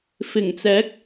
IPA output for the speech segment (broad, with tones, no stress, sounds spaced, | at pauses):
f ɪ˨˩ ŋ t͡s ɛː˨˥ k̚